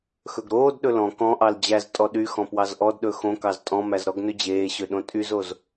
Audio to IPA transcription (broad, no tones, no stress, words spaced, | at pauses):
xɵɡɾoːdɗɵ lɔ̃ kɔ̃ʔɑl d͡ʑæz tʼɔɗyxɔ̃ pwɑzʔɔdɗɵ xõkɑz tʼɔ̃mæz ɾɔɡnɵd͡ʑeːɕø ɗõtʼyzoz